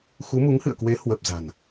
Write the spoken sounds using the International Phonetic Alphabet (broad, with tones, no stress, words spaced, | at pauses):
xu˨˦mu˨˦ŋhɨ̰˧˨ə̯kwe˨˦ hwə˨˩p̚ za̤˨˩n